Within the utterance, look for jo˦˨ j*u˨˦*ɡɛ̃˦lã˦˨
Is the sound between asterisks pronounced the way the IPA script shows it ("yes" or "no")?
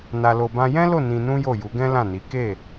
yes